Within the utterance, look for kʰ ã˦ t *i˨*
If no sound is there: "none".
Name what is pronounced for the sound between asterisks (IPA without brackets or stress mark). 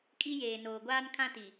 i˨